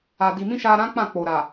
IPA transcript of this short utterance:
a˨ di˨mĩ˧ ʃa˧ ɾã˦k͡pã˦˨ k͡po˨ɾa˨

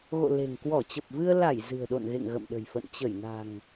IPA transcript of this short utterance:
ɣo̰˧˨le̤˨˩ŋ kwɔ˧˩ t͡ɕə˨˩p̚vɨ˧ə̯ la˧˩j zɨ̤˨˩ə̯ɗo̰˧˨nɣḛ˧˨ŋ ɣə̰˧˨mɗə̤˨˩jfə̰˧˨n t͡ɕə˧˩jna̤˨˩ŋ

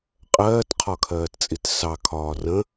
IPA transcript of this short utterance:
qʼɜːtqʰɒkʰɜːtt͡sʼit sɑkʰɒː rə̃

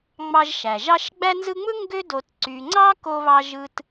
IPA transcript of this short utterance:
ŋ͡mɑ˦ʒʃæ˩ʒ ɑ˥ʃ ɡ͡bæ˦nzɯ˦ŋ͡mɯ˥ ŋɡø˦do˨t ǀy˨ŋ͡ǀɑ˥ ko˦βɑ˦ ʒɯ˥t

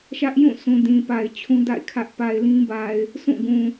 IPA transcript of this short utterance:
ʃä˦ʔjũ˦˨sũ˨ dĩ˨pa˨ɪ̯t͡ɕʰũ˦ da̰˦˨ɪ̯kʰä˦ʔ pa˨ɪ̯lĩ˦ba˨ɪ̯ | sʰũ˦˨ɡũ˨

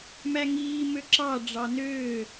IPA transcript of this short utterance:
mæŋiː møǁɑ ɖ͡ʐɑnøː

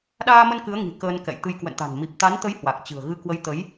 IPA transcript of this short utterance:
ɗaː˧mə˧n kɨ˨˦ə̯ŋi̤˨˩ kəː˧nkɛ̰˧˨jt̪ɨ˧j kwə̰˧˨nt̪a̤˨˩n mi˨˩p̚t̪a˨˦nt̪ə˨˦j hwa˨˩k̚t͡ɕɨ̤˨˩ə̯ɣɨ˧ kwə˨˦jt̪ə˨˦j

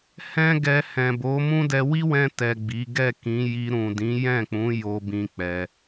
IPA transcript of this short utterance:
hɛ̃˦ɡɛ˧ hɛ̃˨bo˨˦mũ˦dɛ˧ wi˦wɛ̃˧ tɛ˨ ɡ͡bi˨˦ ɡɛ˦˨kĩ˨˦ ji˧ ɾũ˨dĩ˨˦jɛ̃˦˨k͡pũ˨˦ jo˧bĩ˧ k͡pɛ˧

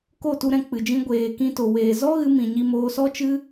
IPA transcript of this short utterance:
ko˦˨tu˧ ɾɛ̃˧k͡pɨ˨d͡ʒĩ˧ ɡʷeː˨kĩ˧to˨ weː˨ zɔ˦ɣɨ˧ mĩ˨ɲi˧moː˧ sɔ˦t͡ʃɨ˦

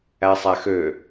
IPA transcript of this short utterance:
æsˤæxø

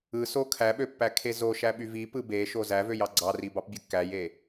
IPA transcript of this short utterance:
ɯso kʰæɓøpːækʰe zoʃæɓyv ipɯ beʃo zævøjɑ ɡ͡ǀɑribɑpbʲɯ kːæje

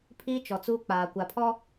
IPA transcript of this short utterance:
pʰiː˦t͡ʃɔ˨t͡suː˦ k͡paː˨kʷa˨pʰɔ˦

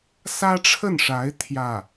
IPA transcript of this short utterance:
sä˥ʈ͡ʂʰə˥˩nʂa˧˥ɪ̯ t̪ʰjä˥˩

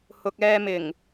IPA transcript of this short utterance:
hʊ˨k̚ɛː˧mɪ˨˩ŋ

